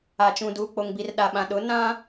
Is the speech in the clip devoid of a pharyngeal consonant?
yes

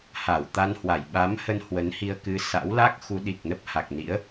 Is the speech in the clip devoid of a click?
yes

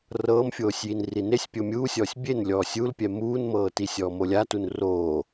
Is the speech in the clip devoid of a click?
yes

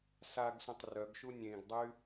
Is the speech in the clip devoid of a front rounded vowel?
no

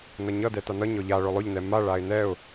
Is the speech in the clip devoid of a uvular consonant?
yes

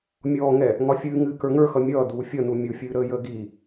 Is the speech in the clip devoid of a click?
yes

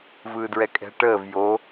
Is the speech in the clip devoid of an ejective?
no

